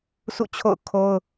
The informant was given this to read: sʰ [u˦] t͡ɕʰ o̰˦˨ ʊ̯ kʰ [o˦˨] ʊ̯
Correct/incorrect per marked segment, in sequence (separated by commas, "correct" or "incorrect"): incorrect, incorrect